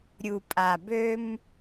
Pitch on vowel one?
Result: low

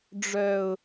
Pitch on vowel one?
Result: low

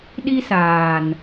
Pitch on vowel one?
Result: high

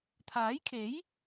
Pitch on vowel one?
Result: rising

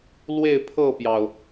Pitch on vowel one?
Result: falling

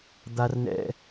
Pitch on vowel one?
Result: high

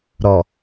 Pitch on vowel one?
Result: low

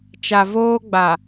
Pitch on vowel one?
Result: low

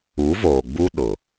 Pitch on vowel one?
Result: rising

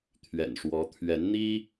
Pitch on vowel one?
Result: low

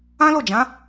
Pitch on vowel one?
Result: high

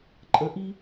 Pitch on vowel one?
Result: rising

